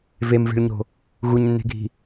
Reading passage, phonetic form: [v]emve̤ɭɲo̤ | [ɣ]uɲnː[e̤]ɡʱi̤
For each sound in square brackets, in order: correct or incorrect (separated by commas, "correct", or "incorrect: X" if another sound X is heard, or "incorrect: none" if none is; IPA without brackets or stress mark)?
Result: correct, correct, correct